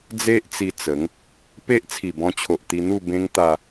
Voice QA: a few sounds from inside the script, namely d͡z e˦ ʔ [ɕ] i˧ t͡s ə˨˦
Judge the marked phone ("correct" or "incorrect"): incorrect